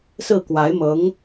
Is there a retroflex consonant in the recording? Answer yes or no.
no